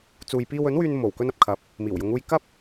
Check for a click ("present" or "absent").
absent